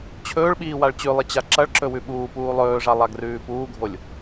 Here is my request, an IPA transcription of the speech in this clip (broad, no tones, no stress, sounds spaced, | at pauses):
t͡ɕʰ ɵː ɭ ɓ iː w a ɭ t͡ɕ ʉ lˠ i t͡ɕ a ǁ ɐ ɭ ǁ ɵ w ʉ ɓ uː p uː lˠ ɵː ʐ a lˠ a ɡ r ʉː p uː ɡʱ o lʲ